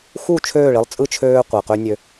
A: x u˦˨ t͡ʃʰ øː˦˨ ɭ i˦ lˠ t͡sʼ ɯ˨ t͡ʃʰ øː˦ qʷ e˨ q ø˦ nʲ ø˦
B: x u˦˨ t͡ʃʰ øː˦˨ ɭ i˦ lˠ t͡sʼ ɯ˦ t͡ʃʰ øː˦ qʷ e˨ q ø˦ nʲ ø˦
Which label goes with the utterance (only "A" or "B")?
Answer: B